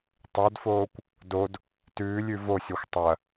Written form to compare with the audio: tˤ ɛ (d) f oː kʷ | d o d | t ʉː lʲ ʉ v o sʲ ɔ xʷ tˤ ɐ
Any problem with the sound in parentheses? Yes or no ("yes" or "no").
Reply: no